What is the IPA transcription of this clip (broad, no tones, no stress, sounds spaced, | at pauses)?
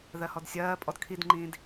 ð ɜ h ɔ d sʲ ɜː pʼ ɔ d kʰ i d ŋ͡ǃ ĩː d